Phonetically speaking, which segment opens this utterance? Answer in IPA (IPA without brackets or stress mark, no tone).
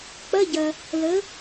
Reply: k͡p